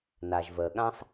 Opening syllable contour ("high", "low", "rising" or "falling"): low